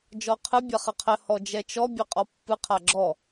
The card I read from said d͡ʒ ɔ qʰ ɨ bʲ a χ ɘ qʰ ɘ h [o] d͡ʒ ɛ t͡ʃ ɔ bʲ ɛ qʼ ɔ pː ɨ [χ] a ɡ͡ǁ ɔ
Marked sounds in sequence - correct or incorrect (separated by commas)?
incorrect, incorrect